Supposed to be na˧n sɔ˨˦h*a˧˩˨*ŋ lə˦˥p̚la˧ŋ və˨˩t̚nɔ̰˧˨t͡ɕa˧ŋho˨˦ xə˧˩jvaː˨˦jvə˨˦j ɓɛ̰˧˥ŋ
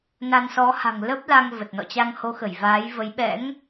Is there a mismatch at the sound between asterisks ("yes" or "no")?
yes